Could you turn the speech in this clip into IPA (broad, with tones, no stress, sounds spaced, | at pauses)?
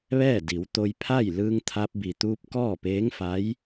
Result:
ʋ ɛː˥˨ d i˩˧ w t̪ o˧ j pʰ a˥˨ j l ɯː˧ ŋ t̪ʰ a˧ p̚ b i˩ t̪ uː˧ p̚ k ɔː˥˨ p eː˧˥ ŋ f a˧˥ j